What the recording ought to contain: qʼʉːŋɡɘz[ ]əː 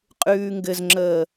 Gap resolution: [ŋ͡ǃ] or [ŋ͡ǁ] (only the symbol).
ŋ͡ǁ